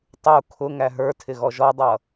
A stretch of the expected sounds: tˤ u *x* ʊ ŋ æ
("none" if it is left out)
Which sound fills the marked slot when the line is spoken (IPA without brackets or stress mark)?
kʰ